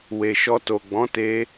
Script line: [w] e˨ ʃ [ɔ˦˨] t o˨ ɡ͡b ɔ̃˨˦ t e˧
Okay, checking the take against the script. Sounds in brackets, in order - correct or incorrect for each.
correct, incorrect: ɔ˧

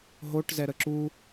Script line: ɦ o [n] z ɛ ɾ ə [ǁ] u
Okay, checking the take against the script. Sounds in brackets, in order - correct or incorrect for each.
incorrect: ʈ, correct

